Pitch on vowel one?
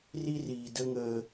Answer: high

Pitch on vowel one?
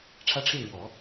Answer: high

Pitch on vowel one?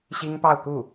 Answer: high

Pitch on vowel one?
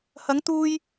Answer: rising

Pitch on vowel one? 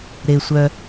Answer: low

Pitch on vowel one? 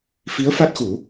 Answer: rising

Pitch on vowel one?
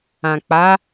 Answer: low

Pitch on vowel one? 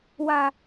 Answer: low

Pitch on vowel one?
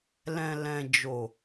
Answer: low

